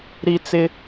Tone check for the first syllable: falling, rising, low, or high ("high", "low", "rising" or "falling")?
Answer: high